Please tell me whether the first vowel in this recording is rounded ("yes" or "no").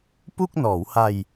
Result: yes